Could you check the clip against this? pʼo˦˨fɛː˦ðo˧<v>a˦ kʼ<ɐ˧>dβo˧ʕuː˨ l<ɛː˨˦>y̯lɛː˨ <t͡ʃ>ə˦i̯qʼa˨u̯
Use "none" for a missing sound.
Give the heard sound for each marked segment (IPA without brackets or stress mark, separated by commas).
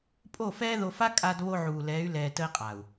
f, a˧, ɛː˨˦, t